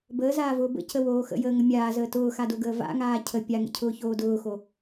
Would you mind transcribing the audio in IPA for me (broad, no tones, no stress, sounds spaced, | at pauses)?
b əː z aː v ʊː b ə̰ c ə w oː x ə̰ j əː ŋ ə mʲ aː z əː t ʊː x a d o ɡ əː v a̰ ŋ aː cʰ ə pʲ a ŋ ə̰ cʰ ʊː ç oː d ʊː x o